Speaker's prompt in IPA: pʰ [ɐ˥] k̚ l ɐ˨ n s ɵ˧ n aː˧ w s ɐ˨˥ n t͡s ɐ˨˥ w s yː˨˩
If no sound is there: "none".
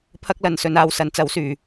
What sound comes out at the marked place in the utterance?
ɐ˥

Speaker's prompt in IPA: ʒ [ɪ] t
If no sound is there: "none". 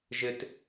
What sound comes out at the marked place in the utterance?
ɪ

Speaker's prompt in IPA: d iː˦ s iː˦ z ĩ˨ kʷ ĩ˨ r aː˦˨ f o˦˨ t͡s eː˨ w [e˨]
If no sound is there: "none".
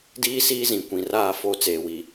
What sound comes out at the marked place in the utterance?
i˨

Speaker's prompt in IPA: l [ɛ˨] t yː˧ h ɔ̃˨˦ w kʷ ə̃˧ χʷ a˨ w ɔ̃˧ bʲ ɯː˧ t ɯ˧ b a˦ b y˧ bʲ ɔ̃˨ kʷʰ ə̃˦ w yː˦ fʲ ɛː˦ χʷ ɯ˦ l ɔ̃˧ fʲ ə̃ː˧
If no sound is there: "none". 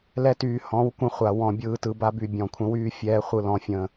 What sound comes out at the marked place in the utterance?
ɛ˦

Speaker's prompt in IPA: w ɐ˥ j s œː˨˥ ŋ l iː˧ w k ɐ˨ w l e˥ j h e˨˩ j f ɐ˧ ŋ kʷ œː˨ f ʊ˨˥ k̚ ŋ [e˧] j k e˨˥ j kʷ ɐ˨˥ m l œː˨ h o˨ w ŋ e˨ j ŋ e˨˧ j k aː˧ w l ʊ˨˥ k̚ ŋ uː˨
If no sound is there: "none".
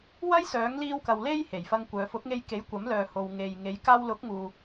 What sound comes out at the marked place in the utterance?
e˧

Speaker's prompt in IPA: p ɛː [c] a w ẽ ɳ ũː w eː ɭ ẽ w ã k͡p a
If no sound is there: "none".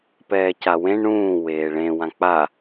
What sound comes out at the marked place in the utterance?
c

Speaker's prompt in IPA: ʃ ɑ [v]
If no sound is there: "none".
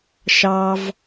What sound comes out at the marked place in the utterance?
v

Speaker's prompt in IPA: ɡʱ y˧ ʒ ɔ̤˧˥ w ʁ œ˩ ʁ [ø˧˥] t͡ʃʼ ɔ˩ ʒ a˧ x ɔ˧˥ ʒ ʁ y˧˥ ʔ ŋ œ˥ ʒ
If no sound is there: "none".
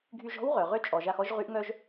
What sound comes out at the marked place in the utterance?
ø˧˥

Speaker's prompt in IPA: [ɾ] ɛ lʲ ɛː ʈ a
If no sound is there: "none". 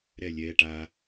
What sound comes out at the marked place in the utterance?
ɾ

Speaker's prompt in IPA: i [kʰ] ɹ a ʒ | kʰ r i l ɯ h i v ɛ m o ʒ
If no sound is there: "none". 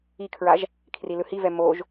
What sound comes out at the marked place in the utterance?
kʰ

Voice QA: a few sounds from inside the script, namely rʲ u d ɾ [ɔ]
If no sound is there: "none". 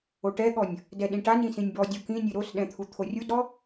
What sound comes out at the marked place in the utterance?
ɔ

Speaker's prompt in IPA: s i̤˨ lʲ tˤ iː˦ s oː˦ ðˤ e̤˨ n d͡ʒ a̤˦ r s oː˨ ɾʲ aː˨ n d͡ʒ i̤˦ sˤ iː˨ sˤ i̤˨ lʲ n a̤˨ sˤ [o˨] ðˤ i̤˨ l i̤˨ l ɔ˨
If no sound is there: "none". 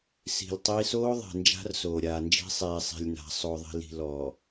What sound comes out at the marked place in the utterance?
o˨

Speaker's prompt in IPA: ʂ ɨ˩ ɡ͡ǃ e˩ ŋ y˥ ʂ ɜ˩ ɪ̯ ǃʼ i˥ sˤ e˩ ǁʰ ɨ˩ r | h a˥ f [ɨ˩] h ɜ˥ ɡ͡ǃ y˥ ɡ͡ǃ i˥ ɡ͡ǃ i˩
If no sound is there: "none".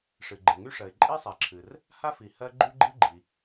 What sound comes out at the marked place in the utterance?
i˩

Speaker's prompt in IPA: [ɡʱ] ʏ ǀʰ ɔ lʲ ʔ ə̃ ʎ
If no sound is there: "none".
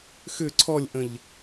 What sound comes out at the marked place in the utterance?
x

